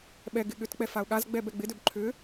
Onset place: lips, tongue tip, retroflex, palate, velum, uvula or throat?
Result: lips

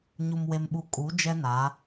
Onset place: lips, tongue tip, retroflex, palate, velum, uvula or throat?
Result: palate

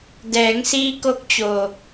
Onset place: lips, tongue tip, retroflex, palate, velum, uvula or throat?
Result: tongue tip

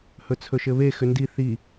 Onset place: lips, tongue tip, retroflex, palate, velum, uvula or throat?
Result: throat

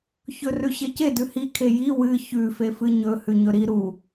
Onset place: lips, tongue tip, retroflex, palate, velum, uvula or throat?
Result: palate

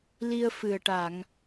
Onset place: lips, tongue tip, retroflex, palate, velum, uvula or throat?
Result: tongue tip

